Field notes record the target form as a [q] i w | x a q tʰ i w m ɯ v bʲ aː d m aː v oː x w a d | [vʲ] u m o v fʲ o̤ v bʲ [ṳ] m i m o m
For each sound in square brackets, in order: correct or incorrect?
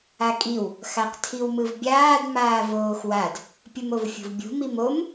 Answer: incorrect: kʼ, incorrect: pʲ, correct

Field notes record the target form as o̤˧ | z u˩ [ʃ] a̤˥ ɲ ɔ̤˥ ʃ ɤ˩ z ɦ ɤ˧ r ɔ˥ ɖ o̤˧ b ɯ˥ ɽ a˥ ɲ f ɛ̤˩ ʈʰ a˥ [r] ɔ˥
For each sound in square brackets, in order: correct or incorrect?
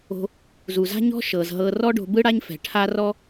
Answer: incorrect: z, correct

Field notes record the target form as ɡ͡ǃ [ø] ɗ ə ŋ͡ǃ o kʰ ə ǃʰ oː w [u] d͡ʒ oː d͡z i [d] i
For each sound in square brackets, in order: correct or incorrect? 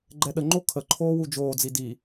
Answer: incorrect: ɛ, correct, correct

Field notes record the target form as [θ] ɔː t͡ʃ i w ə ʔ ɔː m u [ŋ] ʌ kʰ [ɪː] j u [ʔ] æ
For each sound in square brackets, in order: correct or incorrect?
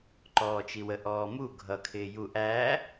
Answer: incorrect: ǃ, incorrect: ɡʱ, correct, correct

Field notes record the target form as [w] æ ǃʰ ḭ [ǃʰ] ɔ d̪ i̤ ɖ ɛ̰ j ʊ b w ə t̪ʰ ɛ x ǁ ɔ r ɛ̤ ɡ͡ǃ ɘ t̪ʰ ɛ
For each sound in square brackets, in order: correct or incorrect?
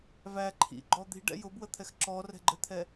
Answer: incorrect: v, incorrect: ɡ͡ǃ

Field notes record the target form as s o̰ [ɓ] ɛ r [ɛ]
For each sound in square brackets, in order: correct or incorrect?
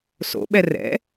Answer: correct, incorrect: ɛ̰

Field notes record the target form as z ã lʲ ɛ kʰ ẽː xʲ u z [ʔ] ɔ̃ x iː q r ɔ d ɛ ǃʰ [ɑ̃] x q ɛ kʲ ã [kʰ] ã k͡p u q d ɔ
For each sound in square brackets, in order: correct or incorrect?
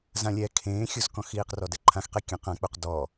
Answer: incorrect: k, incorrect: ã, incorrect: q

